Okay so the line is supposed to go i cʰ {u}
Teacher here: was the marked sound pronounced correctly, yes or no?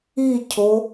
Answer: no